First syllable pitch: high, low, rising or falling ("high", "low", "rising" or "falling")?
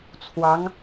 rising